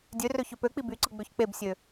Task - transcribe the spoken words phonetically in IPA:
dʲ ø r ø ç ø p ø k͡p i b y ǀ ɯ ɡ͡b ø ç k͡p e b sʲ ø

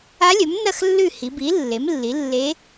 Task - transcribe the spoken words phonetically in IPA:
a˧˥ lʲ ɵ˩˥ m n ɐ˦˨ x lː ʉ˦˨ h i˩˧ b i˩˥ lː e˩˥ m lː i˩˥ lː e˧˥

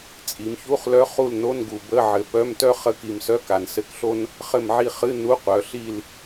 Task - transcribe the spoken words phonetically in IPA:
t͡sʼ i˩˧ m ç u˧˥˧ χ l œ˧˥ χ u˦˨ l n o˧˥˧ n ɡ u˨˩ b ə˧˥˧ ʕ ɘ˨˩ p œ˧˥˧ m t œ˥ χ ə˧˥˧ k i˨˩ m s œ˧˥˧ k a˨˩ n s ɘ˧˥˧ k ɬ o˥ n | χ ɘ˦˨ m ʕ i˦˨ χ ɨ˧˥˧ n u˧˥˧ qʷ œ˩˧ ɬ i˦˨ l

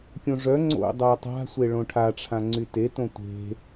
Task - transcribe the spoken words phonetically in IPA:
kʲ õ ʐ œ ŋ͡ǀ o̰ dˤ a tˤ a̤ sʷ e ɭ õ ʈʰ a ʈ͡ʂʰ ã ŋ͡ǀ y t e t õ tʷ e̤

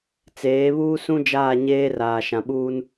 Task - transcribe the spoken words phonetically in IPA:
t͡s eː˨˦ β uː˦ s ũ˦ d͡ʒ aː˦˨ ɲ eː˦ r aː˨ ʃ ã˨ ɓ uː˦ n

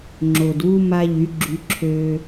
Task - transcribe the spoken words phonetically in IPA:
ŋ͡ǁ o˨ d w u˦ m a˦ ʎ y˨˦ ɡ͡ǁ y˧ ǁʰ ø˦

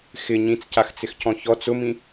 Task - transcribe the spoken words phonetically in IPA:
x ɪ ɲ ĩ t͡s c a x t͡s ɪ x c ɔ̃ ç ɔ t͡s ʊ m ĩ

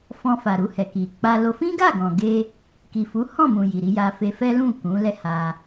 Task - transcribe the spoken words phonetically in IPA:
f ɔ̃˧ f a˨ ɾ u˧ h ɛ˨ k i˨ k͡p a˧ l o˧ f ĩ˦ ɡ a˦˨ ɡ ɔ̃˨ ɡ e˧ | k i˨ f u˨˦ h ɔ̃˦˨ m ũ˨ j i˨ ɾ i˧ j a˧ f e˧ f ɛ˦ l ũ˦˨ k ũ˨˦ l ɛ˦ h a˧

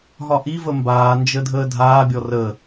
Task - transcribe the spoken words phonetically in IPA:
ɦ ɒ ʔ i v ə m b aː n d͡ʒ ə dʱ əː dʱ aː bʲ ɔ r ə

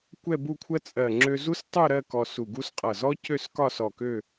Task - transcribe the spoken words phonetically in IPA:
kʷ ɛ˥˧ b u˥˧ kʷʰ ɜ˥ t͡sʼ ɜ˧˩ ŋ͡ǁ ø˧ z u˥ s tˤ u˥˧ ɾ ɜ˥˧ k ɔ˧ s u˧˩ ɡ u˥ s qʼ ʌ˧˩ z ɔ˥ c ø˥˧ s k ɒ˥˧ s ɔ˧˩ k ø˥˧

